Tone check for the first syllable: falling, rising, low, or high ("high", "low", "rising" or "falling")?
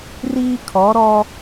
high